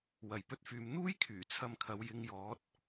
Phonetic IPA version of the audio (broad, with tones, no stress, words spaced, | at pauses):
wɐ˨jpɵ˥t̚fyː˧m n̪uː˥jkʰyː˨˩t͡sʰɐ˧mkʰɐ˨˧w jɪ˧ŋjɔː˨˥t̚